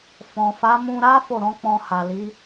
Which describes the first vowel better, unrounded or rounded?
rounded